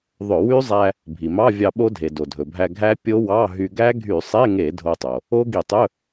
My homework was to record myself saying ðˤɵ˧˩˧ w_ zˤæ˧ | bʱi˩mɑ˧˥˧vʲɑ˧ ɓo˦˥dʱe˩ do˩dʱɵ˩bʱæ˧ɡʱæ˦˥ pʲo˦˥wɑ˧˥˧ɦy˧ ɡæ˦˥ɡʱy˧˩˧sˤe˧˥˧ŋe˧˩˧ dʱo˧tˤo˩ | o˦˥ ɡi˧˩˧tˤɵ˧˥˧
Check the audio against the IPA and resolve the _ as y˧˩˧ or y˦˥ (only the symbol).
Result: y˦˥